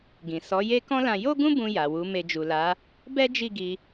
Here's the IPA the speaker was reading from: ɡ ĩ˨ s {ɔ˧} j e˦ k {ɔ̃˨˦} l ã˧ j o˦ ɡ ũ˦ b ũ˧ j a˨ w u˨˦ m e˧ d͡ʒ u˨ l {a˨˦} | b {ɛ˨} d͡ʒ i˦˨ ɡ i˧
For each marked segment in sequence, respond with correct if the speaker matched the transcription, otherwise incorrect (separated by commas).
incorrect, incorrect, correct, incorrect